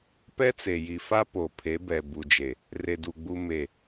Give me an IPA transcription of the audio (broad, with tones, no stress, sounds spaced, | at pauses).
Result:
p ɛ˦ t͡s e˨ j i˨ f a˦ p o˨ pʰ e˨˦ b ɛ˨ b u˨ d͡ʒ e˨ | r e˨ d u˨ ɡ͡b u˦ m e˦˨